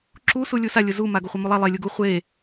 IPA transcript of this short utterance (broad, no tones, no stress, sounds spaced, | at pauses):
ǁ u s u lʲ u s a lʲ ʊ z u m a ɡ ʊ χʷ a m u lˠ a lˠ e lʲ u ɡ u χʷ e